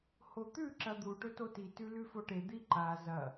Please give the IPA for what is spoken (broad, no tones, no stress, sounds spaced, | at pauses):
h o t̪ ʉ ǁ ɐ d̪ u ʈ ɵ t o t i t ʉ l ʉ f o ʈ e d̪ i ǃ a z ɐ